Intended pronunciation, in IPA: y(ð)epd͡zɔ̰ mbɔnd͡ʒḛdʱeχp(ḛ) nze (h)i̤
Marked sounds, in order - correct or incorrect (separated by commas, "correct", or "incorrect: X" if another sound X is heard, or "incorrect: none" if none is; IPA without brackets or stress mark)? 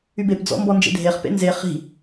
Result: incorrect: b, correct, incorrect: χ